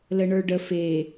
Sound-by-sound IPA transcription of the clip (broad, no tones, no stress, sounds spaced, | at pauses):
l ə ɳ ə˞ ɖ ə f e